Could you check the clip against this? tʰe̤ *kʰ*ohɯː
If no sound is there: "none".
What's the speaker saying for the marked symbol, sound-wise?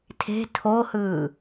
tʰ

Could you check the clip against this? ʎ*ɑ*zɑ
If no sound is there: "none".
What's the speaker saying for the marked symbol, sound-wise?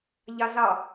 ɑ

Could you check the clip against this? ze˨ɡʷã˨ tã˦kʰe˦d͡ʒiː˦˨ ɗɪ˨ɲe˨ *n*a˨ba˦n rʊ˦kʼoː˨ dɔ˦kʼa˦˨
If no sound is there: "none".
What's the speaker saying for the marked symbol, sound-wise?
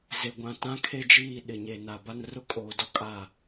n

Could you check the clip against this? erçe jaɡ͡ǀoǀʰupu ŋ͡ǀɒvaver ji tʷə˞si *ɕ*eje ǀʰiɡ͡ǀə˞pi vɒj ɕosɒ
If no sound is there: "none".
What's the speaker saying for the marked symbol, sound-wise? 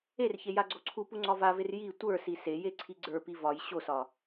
s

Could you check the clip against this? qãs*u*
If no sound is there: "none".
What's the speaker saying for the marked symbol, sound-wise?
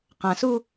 u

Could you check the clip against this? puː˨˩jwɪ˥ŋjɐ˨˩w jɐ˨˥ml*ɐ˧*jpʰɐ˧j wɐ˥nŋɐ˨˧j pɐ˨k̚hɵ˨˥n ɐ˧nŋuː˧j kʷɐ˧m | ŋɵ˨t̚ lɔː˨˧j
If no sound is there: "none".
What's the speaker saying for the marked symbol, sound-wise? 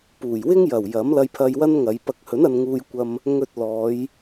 ɐ˧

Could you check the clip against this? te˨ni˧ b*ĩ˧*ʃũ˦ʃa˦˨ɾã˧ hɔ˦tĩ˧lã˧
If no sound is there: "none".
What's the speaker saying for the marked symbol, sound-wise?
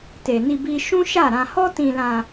i˧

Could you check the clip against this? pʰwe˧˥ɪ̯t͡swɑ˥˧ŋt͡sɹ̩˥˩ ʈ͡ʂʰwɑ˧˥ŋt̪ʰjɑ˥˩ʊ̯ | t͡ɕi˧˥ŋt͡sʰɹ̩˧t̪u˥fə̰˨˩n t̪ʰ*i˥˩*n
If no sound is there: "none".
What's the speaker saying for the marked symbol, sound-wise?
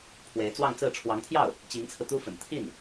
i˥˩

